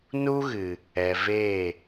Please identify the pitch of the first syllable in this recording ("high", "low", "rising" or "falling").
high